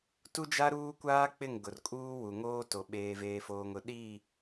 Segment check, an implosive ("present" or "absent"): present